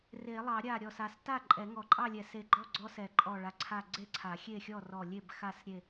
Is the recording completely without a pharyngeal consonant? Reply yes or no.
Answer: yes